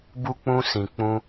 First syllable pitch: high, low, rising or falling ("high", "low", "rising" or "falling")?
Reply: high